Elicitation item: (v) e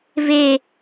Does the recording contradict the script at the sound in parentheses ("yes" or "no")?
no